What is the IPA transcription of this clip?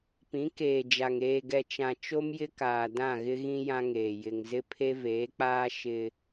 p ĩ˨˦ k eː˨ d͡ʒ a˨ ŋ eː˨ ɡ ɛ˨ t͡ʃ ã˨ t͡ʃ o˦ m j ɪ˦ k aː˨ d ã˦˨ ɣ ɪ˦ ɣ ĩ˦ j ã˦ ŋ eː˨ j ɪ˨ ŋ z ɪ˦ pʰ e˦ v eː˨˦ k͡p aː˦ ʃ ɪ˦

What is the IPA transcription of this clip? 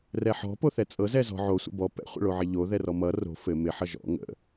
r ɛ ħ ɔ̤ p o θ ɛ t͡sʼ ɤ z ɛ z ɔ̤ ʕ o sʷ ə̰ b ɔ p ɛ̰ χʷ ə̰ ɭ o ʕ ɪ ʎ o ð ɛ r ɔ m ʌ r o̤ f ɘ m ɪ ħ ʌ ʒ ɔ̰ ŋ ə̰

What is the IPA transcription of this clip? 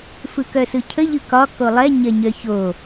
f ɯ k œ s ɯ cʰ ə ʎ ɯ k ɒ k o lˠ ɛ ɲ ɐ ɲ œ ç o

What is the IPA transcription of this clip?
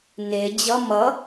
n e d͡ʑ ʌ m ʌ

